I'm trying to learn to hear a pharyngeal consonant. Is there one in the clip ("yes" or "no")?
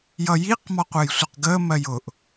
no